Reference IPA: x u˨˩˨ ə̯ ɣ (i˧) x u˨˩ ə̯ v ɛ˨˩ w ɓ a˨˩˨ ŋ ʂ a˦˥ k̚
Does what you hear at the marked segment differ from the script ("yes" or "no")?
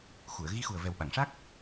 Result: no